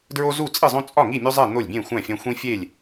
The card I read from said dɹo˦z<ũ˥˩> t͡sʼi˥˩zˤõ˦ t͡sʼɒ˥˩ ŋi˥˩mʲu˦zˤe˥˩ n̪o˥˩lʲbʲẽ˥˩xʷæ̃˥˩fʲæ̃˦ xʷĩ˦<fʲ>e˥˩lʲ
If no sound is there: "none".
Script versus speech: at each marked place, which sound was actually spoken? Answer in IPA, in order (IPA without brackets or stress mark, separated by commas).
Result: u˥˩, fʲ